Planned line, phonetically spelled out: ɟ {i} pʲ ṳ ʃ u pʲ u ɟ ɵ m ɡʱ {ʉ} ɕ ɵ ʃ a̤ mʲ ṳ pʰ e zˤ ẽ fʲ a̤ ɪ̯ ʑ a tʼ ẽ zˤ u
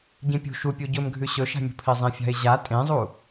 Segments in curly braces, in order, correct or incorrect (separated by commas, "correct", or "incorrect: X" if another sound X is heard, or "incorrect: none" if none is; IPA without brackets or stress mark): incorrect: ĩ, correct